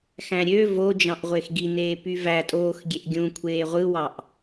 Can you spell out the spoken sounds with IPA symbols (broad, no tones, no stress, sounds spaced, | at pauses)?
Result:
x æ̃ ɾʲ ø v o d͡ʒ ɑ̃ ʔ ʁʷ e x ɡ i n eː p y v æ tʼ oː x ɡʲ e ʔ ɡʲ ũ kʷʰ eː ʁʷ ɯ w ɑ ʔ